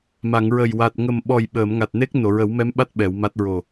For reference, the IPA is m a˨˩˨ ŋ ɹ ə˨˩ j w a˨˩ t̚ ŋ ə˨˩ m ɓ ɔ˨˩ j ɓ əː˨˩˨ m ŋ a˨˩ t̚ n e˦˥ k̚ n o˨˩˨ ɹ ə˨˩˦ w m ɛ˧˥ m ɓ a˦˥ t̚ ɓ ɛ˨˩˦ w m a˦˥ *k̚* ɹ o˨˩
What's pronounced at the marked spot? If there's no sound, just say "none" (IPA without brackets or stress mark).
t̚